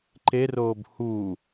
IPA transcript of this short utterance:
ǃ e r oː b h uː

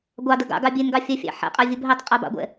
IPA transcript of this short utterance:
ɡʷ ɑ d ə ɡ ɑ̰ ɡ ɑ bʲ e n ɡ ɑ fʲ a fʲ ɑ̰ ħ ɛ̰ qʼ a vʲ ɤ b ɦ e tˤ qʼ a b ɑ̰ ɡʷ ɛ̰

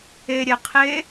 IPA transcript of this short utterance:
e ɾʲ ɛ qʰ e

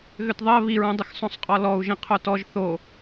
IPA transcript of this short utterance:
ɣ ʏ t ðˤ ɜ β i ɹ õ dˤ ɪ x sˤ õ sˤ qʼ ɔ l ɔ u̯ ʒ ĩ qʰ o t ɔ ʒ θ o

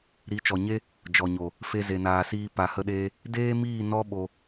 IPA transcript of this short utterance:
ɾ i˨˦ t͡ʃ ɔ˨ ɲ e˦ | d͡ʒ ɔ˨ ɲ o˨ | f e˧ z e˨ n aː˨ s iː˧ p a˨ h ə˧ ɗ eː˧ | d eː˦ m iː˦˨ n ɔ˦ ɓ o˧

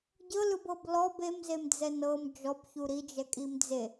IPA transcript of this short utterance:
ɟ ɤ l ɯ b ɤ b l ɔ b e m z e m d͡z ɛ n ɤ m d͡ʒ ɔ b ç u ɾ i d͡ʒ ɛ kʼ i m d͡z e

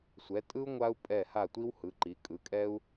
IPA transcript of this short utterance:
sʷ ɛ˩˧ tʼ ɯ˧ u̯ ŋʷ a˧ u̯ pʼ ɛ˧˩ h a˧˩ tʷ i˧ w h ɯ˩˧ ǃ i˩˧ kʼ ɯ˩˧ kʼ ɛ˧ u̯

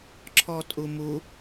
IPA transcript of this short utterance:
ǁʰ ɔ tʼ u m u

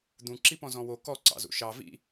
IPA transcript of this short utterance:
d̪ ũ ǁ i p ɔ̃ z ɔ̃ w o k ɔ ǀ ɑ̰ z ṵ ʃ ɑ v ḭ

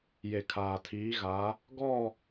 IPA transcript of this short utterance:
j e˨ kʰ aː˨ tʰ iː˨˦ ɣ a˨˦ | ɡ ɔ˦˨

